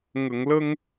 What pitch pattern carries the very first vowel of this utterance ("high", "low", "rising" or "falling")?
low